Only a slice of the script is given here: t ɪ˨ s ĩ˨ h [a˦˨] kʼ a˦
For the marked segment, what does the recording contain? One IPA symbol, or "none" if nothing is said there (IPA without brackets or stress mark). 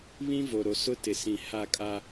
a˦˨